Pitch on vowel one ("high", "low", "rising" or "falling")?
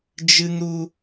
high